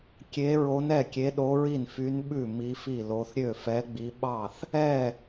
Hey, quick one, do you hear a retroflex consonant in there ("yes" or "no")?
no